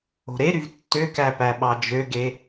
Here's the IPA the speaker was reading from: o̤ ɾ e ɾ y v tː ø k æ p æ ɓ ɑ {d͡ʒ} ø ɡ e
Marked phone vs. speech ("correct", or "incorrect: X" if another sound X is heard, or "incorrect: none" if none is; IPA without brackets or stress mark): correct